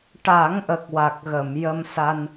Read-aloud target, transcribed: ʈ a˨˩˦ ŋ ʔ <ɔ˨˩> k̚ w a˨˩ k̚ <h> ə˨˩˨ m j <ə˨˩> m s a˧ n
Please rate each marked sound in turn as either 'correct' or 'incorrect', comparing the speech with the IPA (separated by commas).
incorrect, incorrect, incorrect